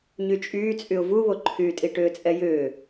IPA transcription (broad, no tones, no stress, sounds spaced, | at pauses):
ɲ y t͡ʃʼ yː t͡sʼ y ʊ̯ v u β o ǃʰ yː tʼ i ʈ ʏː t͡sʼ ɛ j ʏː